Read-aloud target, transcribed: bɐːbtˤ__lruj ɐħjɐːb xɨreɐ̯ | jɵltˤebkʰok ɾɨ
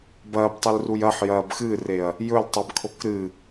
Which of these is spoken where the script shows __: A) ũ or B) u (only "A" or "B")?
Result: B